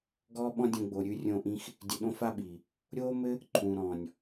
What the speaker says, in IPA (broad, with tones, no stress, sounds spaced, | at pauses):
ɡ ɔː˦ ɓ ɔ̃˦ dʲ õ˧ ɡ͡b o˨ ɾʲ ʉ˧ rʲ õ˧ ʔ ĩ˧ x | dʲ ɘ˧ ɗ õ˦ f a˦ ɓ iː˨ | ɾʲ oː˦ m ɘ˦ | ǃʰ ũː˨ ɾ ɔ̃ː˨ nʲ